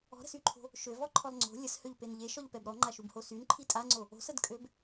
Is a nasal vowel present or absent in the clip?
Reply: absent